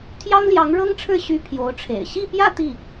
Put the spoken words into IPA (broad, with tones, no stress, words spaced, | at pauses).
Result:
t̪ʰjɑ˥ŋljɑ˧˥ŋɻɤ˥ŋʈ͡ʂʰɻ̩˥˩ ɕy˥pʰjo˧˥ʊ̯ʈ͡ʂʰḛ˨˩ɪ̯ ɕi˥˧pjä˥˧ t̪i˥˩